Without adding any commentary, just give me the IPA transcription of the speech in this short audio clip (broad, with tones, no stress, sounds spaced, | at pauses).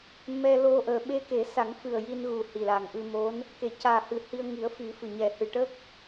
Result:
m ɛ˧ l o˧ ʔ əː˨˩ ɓ e˧ k e˨˩˦ s a˨˩˦ ŋ f ɨ˨˩ ə̯ j i˧ n ɣ u˨˩ h i˨˩ l a˨˩ ŋ ʔ ɨ˧ m o˧˥ n | k e˨˩˨ c aː˨˩ h ɨ˨˩˦ h i˧ ə̯ ŋ i˨˩˦ ə̯ f i˨˩˦ f ɨ˨˩ ɲ ɛ˨˩ h ɨ˨˩ ʈ ə˦˥ k̚